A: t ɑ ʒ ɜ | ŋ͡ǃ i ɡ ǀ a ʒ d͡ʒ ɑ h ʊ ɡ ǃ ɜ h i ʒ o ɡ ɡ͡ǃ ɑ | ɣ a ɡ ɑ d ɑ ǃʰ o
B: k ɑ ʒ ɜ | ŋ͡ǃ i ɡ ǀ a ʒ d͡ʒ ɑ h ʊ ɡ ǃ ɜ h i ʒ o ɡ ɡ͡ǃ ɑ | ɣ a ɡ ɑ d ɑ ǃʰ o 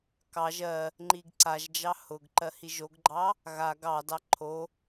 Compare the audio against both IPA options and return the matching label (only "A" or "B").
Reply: B